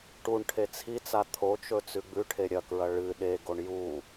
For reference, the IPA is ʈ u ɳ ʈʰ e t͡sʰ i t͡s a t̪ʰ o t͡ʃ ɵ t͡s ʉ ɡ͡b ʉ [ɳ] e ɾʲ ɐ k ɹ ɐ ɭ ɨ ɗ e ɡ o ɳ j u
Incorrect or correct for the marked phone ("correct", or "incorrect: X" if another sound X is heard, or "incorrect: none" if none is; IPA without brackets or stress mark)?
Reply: incorrect: ʈʰ